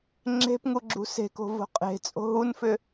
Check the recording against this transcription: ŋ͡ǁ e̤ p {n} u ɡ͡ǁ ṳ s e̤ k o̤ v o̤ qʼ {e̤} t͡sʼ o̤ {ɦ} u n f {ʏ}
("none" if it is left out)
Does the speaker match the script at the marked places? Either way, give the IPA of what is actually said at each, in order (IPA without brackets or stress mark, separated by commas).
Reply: ŋ, e̤, ɦ, ʏ